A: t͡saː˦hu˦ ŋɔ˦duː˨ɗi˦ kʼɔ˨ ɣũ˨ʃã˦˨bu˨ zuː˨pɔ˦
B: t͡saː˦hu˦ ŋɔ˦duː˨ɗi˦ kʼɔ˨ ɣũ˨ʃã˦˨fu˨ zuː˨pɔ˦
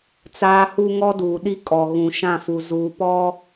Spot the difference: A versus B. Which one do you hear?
B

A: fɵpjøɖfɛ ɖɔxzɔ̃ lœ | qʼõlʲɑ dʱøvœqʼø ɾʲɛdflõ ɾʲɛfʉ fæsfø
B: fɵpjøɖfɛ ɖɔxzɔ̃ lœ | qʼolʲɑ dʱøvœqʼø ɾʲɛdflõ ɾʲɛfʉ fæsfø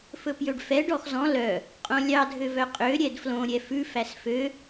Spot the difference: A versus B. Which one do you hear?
A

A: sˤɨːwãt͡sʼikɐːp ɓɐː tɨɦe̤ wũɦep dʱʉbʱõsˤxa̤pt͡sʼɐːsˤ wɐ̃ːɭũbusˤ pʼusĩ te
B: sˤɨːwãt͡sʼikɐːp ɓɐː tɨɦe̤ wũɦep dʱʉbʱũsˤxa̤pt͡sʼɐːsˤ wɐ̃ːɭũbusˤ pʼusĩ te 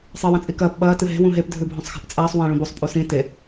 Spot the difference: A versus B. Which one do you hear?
A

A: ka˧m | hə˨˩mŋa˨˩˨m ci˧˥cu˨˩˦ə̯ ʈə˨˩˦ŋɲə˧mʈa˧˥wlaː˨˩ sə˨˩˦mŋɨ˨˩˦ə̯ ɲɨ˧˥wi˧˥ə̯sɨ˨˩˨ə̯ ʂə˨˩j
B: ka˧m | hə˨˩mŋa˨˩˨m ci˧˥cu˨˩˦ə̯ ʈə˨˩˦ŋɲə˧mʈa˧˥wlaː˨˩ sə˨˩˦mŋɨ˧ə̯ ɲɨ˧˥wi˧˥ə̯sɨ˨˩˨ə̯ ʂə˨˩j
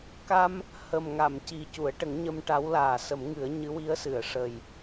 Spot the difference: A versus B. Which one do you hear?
A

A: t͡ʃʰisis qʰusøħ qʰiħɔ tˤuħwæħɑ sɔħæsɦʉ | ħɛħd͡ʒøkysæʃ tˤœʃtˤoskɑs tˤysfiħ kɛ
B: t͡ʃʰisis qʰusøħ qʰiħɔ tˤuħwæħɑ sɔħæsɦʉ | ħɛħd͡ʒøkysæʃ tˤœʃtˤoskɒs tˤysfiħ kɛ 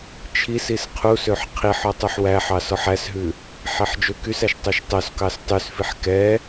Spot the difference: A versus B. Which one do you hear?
A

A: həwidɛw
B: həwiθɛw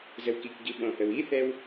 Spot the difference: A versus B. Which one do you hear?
B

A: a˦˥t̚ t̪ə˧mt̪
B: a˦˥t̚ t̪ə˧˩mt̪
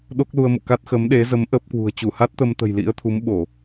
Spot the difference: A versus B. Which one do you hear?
A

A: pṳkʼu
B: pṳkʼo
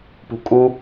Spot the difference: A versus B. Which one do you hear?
A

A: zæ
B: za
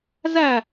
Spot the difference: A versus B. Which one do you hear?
A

